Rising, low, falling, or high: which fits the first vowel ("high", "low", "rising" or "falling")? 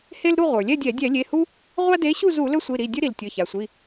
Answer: high